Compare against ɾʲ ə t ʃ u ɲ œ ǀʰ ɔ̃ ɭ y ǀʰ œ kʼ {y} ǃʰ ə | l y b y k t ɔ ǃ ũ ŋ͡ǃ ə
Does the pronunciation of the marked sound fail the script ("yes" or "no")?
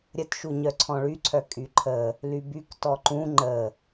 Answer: no